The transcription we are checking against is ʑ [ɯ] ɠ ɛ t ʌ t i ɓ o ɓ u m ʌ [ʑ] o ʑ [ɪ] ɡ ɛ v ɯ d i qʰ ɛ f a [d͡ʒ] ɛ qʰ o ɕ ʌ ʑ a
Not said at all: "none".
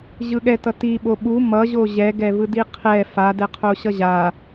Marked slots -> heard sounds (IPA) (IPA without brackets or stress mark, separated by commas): ɯ, ʑ, ɛ, d